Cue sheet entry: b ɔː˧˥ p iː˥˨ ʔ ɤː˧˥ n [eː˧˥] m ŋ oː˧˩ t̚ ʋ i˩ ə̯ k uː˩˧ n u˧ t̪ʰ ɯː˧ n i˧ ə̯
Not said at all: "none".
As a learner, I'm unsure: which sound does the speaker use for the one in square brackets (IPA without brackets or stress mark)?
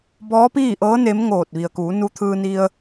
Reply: e˧˥